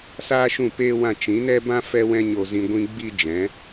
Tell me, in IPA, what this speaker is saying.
s aː˦ ʃ ũ˦˨ p eː˦ w ã˦˨ t͡ʃ ĩ˨˦ n ɛ˦ b ã˦ f ɛ˦ w ɛ̃˦ ɲ o˧ z ĩ˧ ɡʷ ĩ˦ ɡ͡b i˦ d͡ʒ ɛ̃˨˦

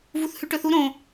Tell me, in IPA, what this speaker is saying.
v u θ h ʉ ʈ ɵ θ u ɾ õ

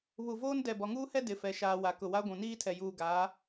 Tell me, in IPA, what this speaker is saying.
β u˨ v oː˦ n d ɛ˨ b ɔ˨ ŋ uː˦ h ɛ˦ d ɪ˨ f ɛ˨ ʃ aː˨ w a˨ k ʊ˨ w a˦ ɡʷ ũ˨ n iː˦ tʰ ɛ˨ j uː˨ ɡ aː˨˦

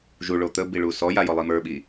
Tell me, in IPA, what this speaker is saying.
ʒ u ɭ o t̪ ə b i ɭ u s ɔ j a j ɔ lˠ i m ə˞ ɓ i

